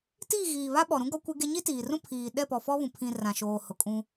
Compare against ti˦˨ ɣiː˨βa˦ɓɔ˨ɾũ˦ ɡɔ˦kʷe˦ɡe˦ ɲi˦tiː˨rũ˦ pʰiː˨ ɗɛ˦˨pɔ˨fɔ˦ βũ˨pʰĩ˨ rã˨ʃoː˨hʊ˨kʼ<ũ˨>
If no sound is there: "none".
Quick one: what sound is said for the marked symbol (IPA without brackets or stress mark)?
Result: ũ˦